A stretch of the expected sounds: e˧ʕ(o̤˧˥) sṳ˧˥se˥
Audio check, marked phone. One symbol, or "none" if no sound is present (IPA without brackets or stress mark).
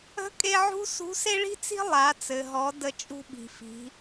ṳ˧˥